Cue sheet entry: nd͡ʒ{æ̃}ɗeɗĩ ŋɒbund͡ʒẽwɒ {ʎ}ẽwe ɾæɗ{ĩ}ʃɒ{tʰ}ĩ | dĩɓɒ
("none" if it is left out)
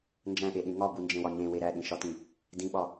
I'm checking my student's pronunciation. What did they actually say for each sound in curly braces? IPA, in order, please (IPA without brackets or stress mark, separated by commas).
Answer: æ̃, ɲ, ĩ, t